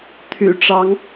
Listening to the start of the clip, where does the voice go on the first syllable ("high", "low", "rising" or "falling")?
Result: low